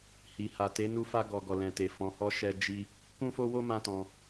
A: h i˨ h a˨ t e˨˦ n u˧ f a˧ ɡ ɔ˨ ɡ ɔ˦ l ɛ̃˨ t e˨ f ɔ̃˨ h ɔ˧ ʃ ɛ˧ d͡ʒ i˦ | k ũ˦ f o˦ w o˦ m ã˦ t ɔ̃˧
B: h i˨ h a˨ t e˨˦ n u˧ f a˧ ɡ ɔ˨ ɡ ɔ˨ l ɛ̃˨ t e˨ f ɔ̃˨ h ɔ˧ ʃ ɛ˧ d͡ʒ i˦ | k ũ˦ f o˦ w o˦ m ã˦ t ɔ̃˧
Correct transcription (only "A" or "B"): B